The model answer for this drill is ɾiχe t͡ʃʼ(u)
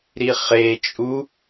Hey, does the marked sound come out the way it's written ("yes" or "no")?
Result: yes